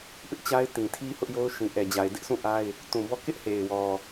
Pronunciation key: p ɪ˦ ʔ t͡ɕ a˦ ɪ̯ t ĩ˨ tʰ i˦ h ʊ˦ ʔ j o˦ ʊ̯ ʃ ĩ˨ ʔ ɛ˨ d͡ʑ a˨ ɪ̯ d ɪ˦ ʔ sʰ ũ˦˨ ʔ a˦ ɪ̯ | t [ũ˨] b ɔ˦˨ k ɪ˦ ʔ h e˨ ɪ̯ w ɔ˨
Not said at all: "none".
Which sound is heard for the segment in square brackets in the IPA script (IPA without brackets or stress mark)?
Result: ũ˨